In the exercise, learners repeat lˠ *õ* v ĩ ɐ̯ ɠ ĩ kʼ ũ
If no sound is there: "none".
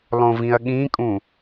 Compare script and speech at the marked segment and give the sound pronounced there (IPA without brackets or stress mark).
õ